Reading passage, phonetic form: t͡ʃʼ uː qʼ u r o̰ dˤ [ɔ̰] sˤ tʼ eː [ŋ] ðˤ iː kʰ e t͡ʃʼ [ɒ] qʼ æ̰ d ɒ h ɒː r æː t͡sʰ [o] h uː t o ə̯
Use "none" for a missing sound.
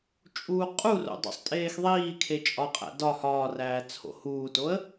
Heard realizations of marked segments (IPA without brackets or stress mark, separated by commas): o̰, x, ɒ, o̰